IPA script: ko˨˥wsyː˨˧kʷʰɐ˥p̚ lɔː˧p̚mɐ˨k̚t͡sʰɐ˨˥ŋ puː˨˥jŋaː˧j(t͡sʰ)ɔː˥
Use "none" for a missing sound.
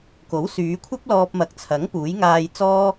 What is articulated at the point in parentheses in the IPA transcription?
t͡s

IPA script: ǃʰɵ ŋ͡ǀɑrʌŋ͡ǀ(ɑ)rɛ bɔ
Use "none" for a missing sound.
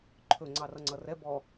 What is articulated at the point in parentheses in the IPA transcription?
ʌ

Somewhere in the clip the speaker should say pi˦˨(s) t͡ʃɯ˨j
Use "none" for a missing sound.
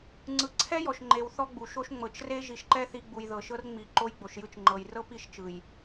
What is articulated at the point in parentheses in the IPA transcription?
ʃ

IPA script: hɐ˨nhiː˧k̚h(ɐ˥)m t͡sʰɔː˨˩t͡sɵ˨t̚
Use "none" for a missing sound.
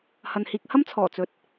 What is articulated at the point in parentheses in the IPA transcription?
ɐ˥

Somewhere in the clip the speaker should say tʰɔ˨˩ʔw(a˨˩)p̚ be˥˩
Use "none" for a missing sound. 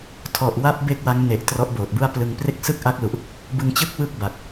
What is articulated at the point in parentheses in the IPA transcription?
a˦˥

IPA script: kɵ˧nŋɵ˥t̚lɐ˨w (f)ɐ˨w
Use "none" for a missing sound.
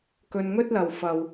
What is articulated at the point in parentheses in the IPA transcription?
f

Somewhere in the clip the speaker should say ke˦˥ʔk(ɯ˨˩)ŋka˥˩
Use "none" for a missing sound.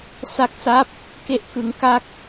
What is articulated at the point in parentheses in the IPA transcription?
ɯ˧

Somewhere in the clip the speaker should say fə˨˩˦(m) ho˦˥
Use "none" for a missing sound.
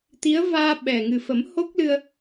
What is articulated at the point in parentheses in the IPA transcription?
m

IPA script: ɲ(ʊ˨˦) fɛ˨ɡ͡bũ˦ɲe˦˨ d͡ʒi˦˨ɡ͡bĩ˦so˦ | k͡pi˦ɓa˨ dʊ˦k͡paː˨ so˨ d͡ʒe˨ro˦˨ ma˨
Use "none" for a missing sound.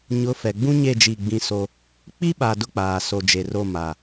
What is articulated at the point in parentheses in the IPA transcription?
ʊ˨˦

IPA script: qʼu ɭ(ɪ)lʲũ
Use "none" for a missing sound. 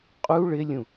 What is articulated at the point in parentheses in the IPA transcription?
ɪ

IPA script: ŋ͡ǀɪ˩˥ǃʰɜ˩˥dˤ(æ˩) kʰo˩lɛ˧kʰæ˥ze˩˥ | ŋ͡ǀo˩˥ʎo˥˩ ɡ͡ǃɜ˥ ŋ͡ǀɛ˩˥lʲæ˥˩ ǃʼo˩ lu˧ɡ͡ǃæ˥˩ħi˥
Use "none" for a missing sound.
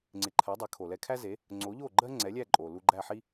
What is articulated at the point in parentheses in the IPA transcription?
æ˩˥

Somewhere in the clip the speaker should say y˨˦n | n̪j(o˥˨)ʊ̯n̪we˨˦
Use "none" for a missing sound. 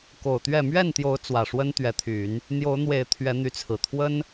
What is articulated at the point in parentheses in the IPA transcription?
o˨˦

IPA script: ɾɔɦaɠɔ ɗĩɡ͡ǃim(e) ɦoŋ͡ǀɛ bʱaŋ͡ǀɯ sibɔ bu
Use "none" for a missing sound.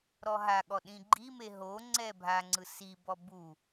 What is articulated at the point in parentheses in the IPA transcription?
e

